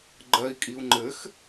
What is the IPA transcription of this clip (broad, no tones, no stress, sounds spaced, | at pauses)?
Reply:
ɡ͡ǃ ɜ i̯ kʼ i u̯ ŋ͡ǃ ɘ x